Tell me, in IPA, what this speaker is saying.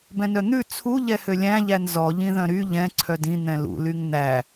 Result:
bɛ̃nœn̪ʉ t͡sʰu ʎɛhølʲæ̃ʎæn zɔʎĩðœ̃ ɾy ʎɛ̃ ǀʰœdĩ n̪ɛ̃lṵlyŋ n̪æ

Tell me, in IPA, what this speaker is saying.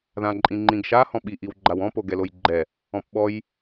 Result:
ðãǃʼĩŋ͡ǃĩɡʃa hɔ̃ɓi ʔiwɡ͡ǃawɔ̃ poɡɛlojɡ͡ǃɛ | ɔ̃pɓɔj

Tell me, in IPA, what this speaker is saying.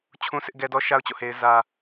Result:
t͡ɕʰũ˦sɪ˦ʔɡɛ˦dɔ˦ ʃa˦ʊ̯t͡ɕo̰˦˨ he˦ɪ̯zä˦

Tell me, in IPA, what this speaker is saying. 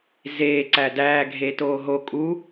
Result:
zeː ǀædæː ɡʱetoːɦo kʼu

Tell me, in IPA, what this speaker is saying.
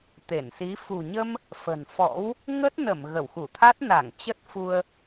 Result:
t̪e˧˩nsi˨˦ fṳ˨˩ɲə˧m | fə̤˨˩n fɔ̰˧˥w | ŋə˦˥t̚nə˧˩m ɣə˧˩wxu˧˩t̪ʰa˦˥t̚ na˧˩ŋ t͡ɕə˦˥t̚fu˧ə̯

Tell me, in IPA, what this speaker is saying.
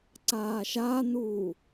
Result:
ǀaːʃanuː

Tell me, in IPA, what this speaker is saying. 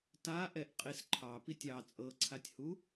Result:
taʔɛʔ qʼisǃʰɑ pitʲɑ t͡sʼɤǀʰatʲhu

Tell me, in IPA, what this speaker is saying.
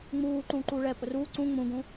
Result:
ŋ͡muː ǃũːǃuːɭɛpʼʊ ruː ǀũ ŋ͡mũɡũː

